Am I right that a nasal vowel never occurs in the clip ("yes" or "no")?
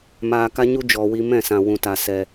no